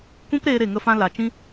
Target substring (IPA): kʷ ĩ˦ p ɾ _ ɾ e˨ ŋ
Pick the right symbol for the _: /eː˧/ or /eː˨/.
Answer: eː˧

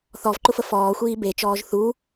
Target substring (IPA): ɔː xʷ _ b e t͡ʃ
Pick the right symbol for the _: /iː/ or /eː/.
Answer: iː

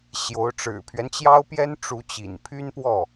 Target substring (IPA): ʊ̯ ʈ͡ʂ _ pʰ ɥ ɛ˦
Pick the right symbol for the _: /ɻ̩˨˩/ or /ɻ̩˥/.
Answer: ɻ̩˨˩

